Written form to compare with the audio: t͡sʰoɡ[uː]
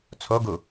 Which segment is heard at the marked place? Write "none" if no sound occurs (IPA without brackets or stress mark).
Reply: u